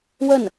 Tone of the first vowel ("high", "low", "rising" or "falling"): falling